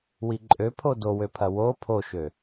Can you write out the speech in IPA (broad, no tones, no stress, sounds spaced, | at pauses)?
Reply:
w i ǃʼ ø pʰ o d o w ø pʰ ɐ w o pʰ o ʃ ø